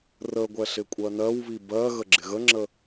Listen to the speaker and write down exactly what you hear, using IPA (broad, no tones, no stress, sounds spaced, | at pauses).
r ə ɡʷ ɛ ɬ ɪ kʷʼ ɜ n ɜ w β i b ɜ ɣ ə ɡ͡ǁ ɪ ɣ ə ŋ͡ǁ ə